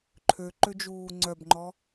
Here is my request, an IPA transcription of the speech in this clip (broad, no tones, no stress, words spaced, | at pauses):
ǃʰøǃød͡ʒuː ŋ͡ǀœbŋ͡ǃɔ